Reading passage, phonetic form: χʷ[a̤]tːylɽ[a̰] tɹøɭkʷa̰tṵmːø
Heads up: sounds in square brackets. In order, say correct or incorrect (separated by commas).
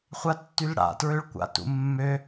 incorrect, correct